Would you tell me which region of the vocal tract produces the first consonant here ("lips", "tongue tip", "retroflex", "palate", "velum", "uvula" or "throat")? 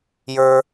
palate